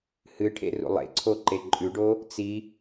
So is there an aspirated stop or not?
yes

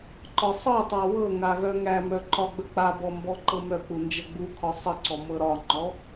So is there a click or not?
yes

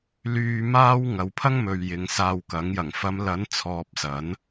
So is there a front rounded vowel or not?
yes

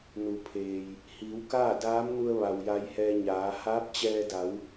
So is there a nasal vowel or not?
no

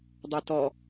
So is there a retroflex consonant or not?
no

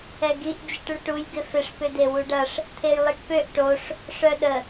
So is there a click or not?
no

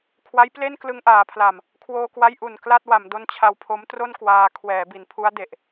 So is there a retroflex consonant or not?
no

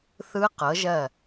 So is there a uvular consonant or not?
yes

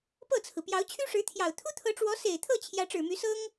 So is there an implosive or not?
no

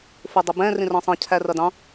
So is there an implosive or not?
no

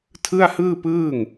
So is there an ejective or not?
no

